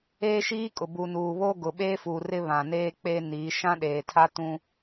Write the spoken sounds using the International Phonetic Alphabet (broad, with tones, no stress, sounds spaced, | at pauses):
eː˦ ʃ iː˦ kʼ ʊ˨ b u˨ n uː˨ β oː˦ ɡ ʊ˨ ɓ eː˦ f uː˨ r ɪ˦ β ã˨ n eː˦ k͡p eː˦ n iː˨˦ ʃ ã˦ ɗ eː˨ tʰ a˦ t ũ˦